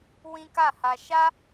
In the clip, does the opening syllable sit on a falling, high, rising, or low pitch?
high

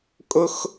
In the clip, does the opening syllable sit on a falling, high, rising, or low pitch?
high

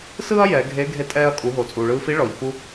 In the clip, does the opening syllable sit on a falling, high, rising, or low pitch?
high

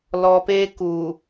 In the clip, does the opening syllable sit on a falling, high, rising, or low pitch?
low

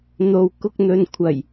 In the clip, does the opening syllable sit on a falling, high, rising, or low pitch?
low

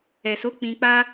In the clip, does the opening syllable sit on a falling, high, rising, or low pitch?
low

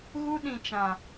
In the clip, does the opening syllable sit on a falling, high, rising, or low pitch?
high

